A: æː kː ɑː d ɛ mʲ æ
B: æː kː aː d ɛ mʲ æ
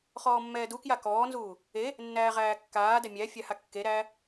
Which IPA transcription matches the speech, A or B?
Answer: B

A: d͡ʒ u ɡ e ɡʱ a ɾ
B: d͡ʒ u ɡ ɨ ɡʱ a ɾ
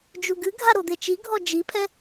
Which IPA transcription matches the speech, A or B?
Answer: B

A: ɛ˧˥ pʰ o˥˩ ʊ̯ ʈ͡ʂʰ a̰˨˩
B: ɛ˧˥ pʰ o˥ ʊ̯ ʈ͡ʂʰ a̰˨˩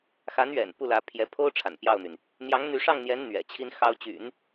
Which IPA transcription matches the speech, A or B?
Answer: B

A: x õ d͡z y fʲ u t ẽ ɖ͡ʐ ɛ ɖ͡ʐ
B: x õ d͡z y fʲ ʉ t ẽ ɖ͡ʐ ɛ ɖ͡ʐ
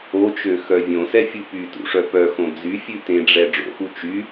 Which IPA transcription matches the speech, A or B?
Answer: B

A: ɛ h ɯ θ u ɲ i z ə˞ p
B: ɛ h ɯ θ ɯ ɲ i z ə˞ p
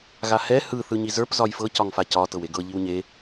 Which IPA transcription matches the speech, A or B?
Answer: B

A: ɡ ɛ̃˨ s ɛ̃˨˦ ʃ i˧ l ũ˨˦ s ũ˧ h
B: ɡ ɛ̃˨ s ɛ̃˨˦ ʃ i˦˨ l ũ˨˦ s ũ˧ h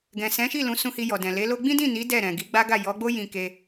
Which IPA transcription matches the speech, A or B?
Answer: B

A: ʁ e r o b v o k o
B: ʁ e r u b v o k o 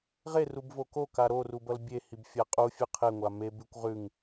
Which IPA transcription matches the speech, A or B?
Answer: B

